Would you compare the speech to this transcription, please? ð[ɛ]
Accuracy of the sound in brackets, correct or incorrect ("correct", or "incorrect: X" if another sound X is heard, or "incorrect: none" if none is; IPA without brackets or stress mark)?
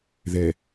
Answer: correct